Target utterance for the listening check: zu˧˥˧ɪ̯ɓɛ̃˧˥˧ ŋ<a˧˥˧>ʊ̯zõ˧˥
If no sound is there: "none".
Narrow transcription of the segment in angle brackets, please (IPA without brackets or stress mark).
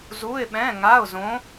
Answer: a˧˥˧